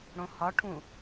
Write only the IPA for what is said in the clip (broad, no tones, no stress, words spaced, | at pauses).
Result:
ɽõhɒʈʰũ